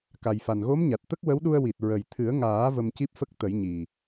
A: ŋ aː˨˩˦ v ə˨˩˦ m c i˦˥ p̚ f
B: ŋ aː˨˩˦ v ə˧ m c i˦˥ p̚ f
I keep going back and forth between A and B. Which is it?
B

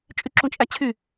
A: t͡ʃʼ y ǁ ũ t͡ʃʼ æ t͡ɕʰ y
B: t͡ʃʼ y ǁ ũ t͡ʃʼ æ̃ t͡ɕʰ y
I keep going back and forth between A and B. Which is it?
A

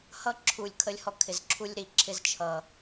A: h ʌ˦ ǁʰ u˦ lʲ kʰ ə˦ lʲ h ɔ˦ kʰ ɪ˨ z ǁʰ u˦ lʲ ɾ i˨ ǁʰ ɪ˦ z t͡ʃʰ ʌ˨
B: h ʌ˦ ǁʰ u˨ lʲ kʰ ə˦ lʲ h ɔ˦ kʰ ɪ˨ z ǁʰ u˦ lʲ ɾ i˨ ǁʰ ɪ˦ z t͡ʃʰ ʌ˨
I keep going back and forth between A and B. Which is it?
B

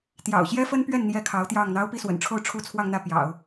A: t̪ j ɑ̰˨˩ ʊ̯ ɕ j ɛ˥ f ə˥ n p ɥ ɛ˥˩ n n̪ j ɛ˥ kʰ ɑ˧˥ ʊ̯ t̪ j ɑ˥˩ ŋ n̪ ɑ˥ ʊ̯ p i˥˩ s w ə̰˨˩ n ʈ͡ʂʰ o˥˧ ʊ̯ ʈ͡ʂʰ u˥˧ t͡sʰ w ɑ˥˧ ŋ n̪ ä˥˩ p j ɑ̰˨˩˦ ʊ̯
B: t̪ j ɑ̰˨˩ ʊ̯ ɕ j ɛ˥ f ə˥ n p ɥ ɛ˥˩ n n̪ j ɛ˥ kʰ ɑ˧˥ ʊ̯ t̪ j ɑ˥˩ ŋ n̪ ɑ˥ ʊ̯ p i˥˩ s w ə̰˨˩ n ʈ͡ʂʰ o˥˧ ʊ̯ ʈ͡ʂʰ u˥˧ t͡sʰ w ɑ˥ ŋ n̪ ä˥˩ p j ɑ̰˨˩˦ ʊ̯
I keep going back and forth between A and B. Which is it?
A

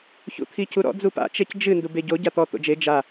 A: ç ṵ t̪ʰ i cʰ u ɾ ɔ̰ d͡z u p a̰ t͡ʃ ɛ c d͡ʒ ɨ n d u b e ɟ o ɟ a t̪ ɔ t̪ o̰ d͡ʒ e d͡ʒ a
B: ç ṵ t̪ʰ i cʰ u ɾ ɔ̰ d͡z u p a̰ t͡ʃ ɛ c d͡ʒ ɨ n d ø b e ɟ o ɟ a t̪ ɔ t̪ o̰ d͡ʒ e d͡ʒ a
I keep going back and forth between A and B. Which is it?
A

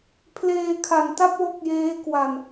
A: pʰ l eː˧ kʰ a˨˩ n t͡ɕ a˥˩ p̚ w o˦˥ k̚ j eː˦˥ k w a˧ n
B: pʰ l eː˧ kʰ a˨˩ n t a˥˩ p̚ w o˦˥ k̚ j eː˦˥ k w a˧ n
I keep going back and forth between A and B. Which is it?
B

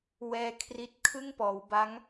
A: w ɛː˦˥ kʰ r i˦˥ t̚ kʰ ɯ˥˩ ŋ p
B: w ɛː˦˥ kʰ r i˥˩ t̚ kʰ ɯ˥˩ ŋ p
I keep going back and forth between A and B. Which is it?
A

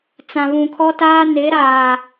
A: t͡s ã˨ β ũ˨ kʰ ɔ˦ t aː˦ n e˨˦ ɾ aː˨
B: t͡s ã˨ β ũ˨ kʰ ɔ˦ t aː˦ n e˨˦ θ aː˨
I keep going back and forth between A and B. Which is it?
A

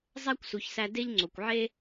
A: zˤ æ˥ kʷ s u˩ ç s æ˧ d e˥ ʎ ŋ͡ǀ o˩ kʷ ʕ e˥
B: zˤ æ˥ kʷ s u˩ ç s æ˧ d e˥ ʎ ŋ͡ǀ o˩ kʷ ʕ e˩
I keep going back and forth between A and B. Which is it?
A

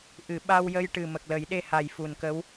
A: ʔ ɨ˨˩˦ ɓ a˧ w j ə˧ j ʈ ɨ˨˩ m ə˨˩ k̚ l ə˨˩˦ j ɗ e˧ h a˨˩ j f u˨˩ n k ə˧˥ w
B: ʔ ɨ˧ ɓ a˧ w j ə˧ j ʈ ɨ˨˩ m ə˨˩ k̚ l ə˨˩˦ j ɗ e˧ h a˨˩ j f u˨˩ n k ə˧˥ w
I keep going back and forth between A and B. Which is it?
A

